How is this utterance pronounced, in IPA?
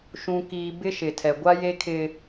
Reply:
ʃ ũ˨ k iː˨ b ɪ˦ ʃ ɪ˨ tʰ ɛ˨ ɡʷ a˦ j e˦ kʰ ɪ˦

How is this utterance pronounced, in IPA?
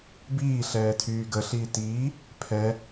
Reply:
b iː ɬ ɛː tʰ yː ɡ ə ɬ iː t iː | pʰ ɛ

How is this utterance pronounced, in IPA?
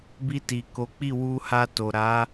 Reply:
b i˧ t i˨ k o˨˦ k͡p i˦˨ w u˧ h a˧ t o˨ ɾ a˨˦

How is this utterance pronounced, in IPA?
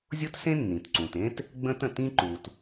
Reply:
zʲ ʊ˥ t s ẽ˥ nː ĩ˩ t ǀ ũ˩ t ẽ˥ t | ɡ͡b ə̃˥ t ə̃˩ t ĩ˥ ǃ u˩ t

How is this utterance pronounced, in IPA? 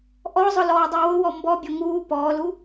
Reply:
ʔ ɔ zˤ ʊ l ɔː dˤ ə˞ w ʊ w ɔ m b ɔ bʲ ɔ ŋ uː p ɔː l u

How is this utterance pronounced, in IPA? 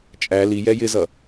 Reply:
t͡ʃʼ æ l i j ɛ j ɪ z ʌ

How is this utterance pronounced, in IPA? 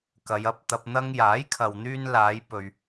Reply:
k ɐ˨˧ j ɐ˧ p̚ t̪ ɐ˧ p̚ n̪ ɐ˧ ŋ j aː˨˥ j kʰ ɐ˨ w n̪ yː˧ n l aː˨˧ j p ɵ˨ ɥ

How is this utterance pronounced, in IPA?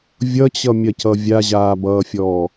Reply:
vʲ ʌ t͡ɕ ʌ mʲ ɐ c ʌ vʲ a ʑ aː b ʌː fʲ ɔː

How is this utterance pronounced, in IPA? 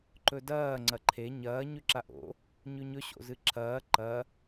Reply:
ǃ ɵ d ɐː ŋ͡ǀ ɐ ǃʰ e ɲ ɐː ɲ ʉ ǁ a ʔ o̰ | ɲ ʉ ɲ ɵ ɕ o̰ z ɨ ǁʰ ɐː ǃ ɐ

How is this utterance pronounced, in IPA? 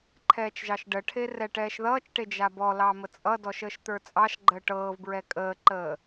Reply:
ǃʰ ɛː t͡ʃ ʒ ɑ ʃ ɖ ə ʈʰ e r ɛ ʈ ɛː ʃ ð ʌː t͡ʃ ʈ e d͡ʒ a b ɔ l ɑ m ə t͡sʼ ʌ d ɔ ʃ əː ʃ t̪ ə˞ t͡sʼ ɑ ʃ ɡ͡ǃ əː ʈ ɤː v b ɹ ɛ kʼ əː ǃ əː

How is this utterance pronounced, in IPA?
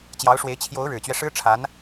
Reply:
t͡ɕ j ɑ˧˥ ʊ̯ ʂ w e˧˥ ɪ̯ t͡ɕʰ j o˧˥ ʊ̯ ɻ ɻ̩˨˩ t͡ɕ ɥ ɛ˦ ʂ ɻ̩˥ ʈ͡ʂʰ a˧˥ n

